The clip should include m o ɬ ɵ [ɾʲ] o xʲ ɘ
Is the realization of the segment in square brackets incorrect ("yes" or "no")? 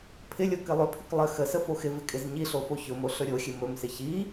no